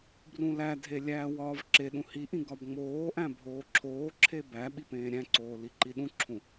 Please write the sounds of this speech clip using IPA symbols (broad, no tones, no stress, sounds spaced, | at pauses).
b r ũ l æ dʱ e lʲ æː w ɒː v ǁ e ɗ ũ h i ʔ ĩ ɡ ɒ b ŋ͡m oː ʔ æ̃ bʱ oː ǁʰ oː ǁʰ e b æ ɓ i p ẽː ɾʲ æ̃ ǀ oː l i ǃ i ɗ ũ ǁʰ ũ